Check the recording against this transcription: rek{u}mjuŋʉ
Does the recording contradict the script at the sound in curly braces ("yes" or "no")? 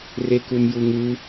no